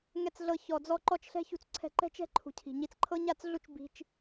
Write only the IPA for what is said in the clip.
ŋ ɛ˨ t͡s ɮ ɤ˨ ç ɔ˨ d͡z ɔ˧ ǃ ɔ˧ t͡ʃ ɬ ɛ̤˧ ç ṳ˧ t͡s ǀʰ ɛ̤˧ ǃ ɛ̤˦ t͡ʃ ɛ̤˦ ǃʰ ṳ˨ cʰ i̤˨ ɲ i˨ t͡s ǃʰ ɤ˦ ɲ a˦˨ t͡s ɮ u˦ t͡ʃ b i̤˦ t͡ʃ

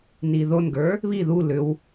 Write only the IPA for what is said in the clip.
n i ð o n ɡ ə˞ | β i ð u l ʏ w

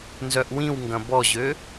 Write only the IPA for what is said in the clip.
n z œ ʔ w ĩ w ŋ ɡ ɐ̃ b ɔ ʑ ø

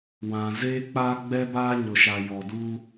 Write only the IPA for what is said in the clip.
w ã˨ z eː˦ k͡p a˦ ɡ͡b ɛ˦ b aː˦ ɲ ʊ˨ ʃ a˨ j ɔ˨ d u˦

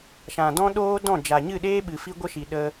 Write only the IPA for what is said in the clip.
ʃ ã˨ d ɔ̃˦ ɗ oː˦ d ɔ̃˦˨ d͡ʒ a˨ ɲ ɨ˦˨ ɗ eː˦ ɓ ɨ˨ f i˦ ɡʷ ə˦ ʃ i˨ ɗ ə˦

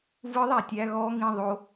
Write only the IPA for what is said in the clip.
v ɯ ðˤ æ tʲ æ ɣ ɔ ŋ ĩ ðˤ o

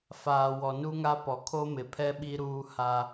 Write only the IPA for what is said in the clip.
f aː˨ w ɔ˨ n u˦ ŋ a˦ p ɔ˨ kʰ o˦ m ɪ˨ pʰ ɛ˦ ɓ i˦ ɾ uː˦ h a˦

